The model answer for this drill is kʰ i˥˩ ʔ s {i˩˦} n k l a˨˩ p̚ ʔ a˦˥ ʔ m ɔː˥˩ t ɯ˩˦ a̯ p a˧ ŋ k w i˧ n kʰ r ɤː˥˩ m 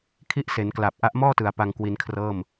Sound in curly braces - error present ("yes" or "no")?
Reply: yes